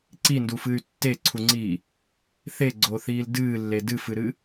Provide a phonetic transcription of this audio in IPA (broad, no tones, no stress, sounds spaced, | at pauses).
ǀ i n d u f ɨː y̯ tː e ǀʰ u ŋ͡ǀ iː | θ e ɡ͡ǀ o θ iː l d ɨː lː e d ɨ f ɨ ɾ ɨ